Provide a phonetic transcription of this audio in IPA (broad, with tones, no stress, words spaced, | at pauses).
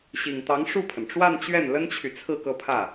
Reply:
ɕi˨˩ŋt̪ɑ˧˥ŋ ʂu˥˩pʰə˩nʈ͡ʂwa˥˧nt͡ɕɥɛ˥˩n lə˥nt͡ɕʰy˨t͡sʰɹ̩˥˧ kɤ˥˧pʰä˥˩